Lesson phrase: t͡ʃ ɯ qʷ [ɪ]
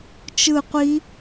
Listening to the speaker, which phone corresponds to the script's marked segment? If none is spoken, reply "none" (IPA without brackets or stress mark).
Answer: i